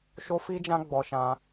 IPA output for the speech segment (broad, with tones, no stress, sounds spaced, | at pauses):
ʃ o˦ f i˦ d͡ʒ ã˦ ɡ͡b ɔ˧ ʃ ã˧